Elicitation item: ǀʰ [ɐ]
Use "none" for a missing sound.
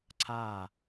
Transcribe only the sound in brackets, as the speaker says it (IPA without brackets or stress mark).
a